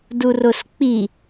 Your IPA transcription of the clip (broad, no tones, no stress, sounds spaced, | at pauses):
d u r o s k͡p i